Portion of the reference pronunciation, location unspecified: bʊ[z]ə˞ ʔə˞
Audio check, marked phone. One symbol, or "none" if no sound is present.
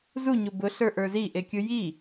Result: ɬ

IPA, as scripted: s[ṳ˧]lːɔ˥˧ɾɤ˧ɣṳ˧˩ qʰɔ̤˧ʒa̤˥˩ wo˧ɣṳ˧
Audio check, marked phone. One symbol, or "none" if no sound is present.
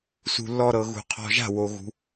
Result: ṳ˧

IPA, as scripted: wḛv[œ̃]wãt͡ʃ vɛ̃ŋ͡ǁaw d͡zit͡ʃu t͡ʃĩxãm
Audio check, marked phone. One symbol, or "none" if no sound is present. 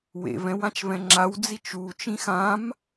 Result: ɛ̃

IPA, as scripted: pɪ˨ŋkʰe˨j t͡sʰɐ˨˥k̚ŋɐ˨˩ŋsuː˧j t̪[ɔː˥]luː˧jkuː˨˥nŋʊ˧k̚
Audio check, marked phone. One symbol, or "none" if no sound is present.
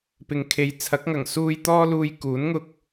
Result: ɔː˥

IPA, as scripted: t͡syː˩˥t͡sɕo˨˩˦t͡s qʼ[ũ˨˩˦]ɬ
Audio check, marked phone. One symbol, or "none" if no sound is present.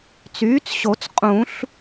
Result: ũ˨˩˦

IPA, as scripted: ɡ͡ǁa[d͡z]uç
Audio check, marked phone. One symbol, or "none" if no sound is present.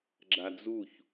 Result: d͡z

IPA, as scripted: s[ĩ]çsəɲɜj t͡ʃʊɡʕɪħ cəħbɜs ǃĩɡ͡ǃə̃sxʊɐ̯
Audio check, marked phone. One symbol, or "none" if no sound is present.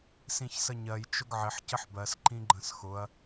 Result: ĩ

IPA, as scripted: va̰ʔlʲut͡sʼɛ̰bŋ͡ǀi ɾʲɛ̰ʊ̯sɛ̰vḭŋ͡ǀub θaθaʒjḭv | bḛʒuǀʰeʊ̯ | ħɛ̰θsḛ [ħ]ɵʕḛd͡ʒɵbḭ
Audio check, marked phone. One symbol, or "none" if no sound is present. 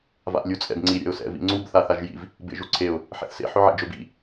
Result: ħ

